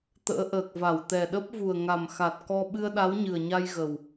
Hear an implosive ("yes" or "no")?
yes